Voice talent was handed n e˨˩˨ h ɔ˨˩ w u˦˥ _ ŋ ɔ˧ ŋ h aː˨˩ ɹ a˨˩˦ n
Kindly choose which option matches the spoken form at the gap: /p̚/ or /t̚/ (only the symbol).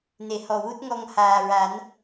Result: t̚